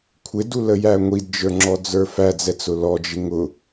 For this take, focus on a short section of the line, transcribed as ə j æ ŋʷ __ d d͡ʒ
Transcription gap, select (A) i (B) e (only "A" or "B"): A